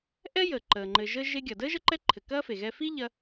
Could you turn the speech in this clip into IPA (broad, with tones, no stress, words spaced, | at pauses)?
ʔɛ˥jəː˩ǃəː˩ ŋ͡ǃɘ˩ʒə˧ ʒe˧ɡʲɐ˩dəː˥ ʒə˥ǃɛ˥ǃʰɘ˩ kɐː˥fe˩ ɣɛ˧fi˥ ʎɐ˥